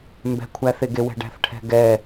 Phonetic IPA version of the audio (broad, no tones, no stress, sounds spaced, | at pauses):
m b ɛ̤ kʷʰ æ θ e ɡ e w ɛ̤ ɖ æ̤ θ ʈʰ ɛ̤ ɡ ɛ